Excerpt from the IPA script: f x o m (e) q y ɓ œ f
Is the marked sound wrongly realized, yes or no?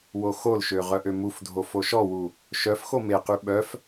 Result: no